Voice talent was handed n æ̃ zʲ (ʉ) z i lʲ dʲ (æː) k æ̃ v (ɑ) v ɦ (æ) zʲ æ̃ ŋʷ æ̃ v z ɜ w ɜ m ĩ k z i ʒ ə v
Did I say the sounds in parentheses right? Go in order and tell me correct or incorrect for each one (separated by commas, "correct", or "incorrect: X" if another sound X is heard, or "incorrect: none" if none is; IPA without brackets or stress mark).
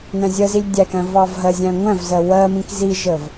incorrect: ə, incorrect: æ, correct, incorrect: ɜ